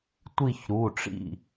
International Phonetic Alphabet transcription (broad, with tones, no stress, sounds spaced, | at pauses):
tʷ i˦˨ ç ɾ u˩˧˩ ʈ͡ʂ ḭ˦˨